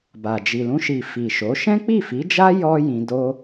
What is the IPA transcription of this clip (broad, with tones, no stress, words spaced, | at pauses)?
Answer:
ba˨ d͡ʒi˨lũ˧ʃi˨ fi˨ʃo˨˦ ʃɛ̃˦k͡pi˦˨fi˨˦d͡ʒa˦ jɔ˦ jĩ˧ do˦